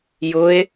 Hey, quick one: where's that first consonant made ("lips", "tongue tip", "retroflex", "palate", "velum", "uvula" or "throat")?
palate